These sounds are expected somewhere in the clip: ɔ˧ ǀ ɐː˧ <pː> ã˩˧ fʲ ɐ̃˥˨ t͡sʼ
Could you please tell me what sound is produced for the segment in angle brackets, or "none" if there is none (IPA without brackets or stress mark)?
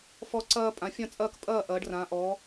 pʼ